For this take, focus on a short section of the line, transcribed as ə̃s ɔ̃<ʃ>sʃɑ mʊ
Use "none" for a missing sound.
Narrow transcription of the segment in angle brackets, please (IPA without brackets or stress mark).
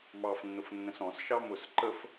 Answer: none